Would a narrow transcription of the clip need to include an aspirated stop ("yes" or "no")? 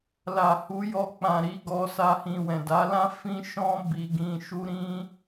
no